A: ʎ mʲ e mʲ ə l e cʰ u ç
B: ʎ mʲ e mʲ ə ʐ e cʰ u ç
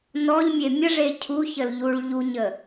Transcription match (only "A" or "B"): B